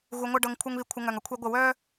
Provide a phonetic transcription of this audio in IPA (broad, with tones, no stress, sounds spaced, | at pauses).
ɣ u˧ ŋʷ ɤ˦ ɖ ɤ˧ ŋ kʷʰ ɤ˦ ŋ β i˧ kʷʰ ə˧ ŋ œ˨ ŋ ʌ˦ kʷʰ ɛ˦ ɡʷ ə˦˨ w œ˦